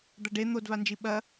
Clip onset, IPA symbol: d̪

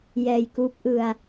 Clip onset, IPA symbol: j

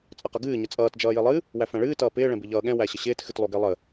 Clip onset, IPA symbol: t͡sʼ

